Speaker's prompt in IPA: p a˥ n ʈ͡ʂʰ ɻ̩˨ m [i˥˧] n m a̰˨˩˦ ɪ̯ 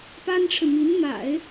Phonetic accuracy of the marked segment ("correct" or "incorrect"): incorrect